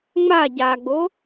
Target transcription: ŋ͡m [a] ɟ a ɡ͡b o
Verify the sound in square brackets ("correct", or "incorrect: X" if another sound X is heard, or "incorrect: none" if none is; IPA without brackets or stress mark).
correct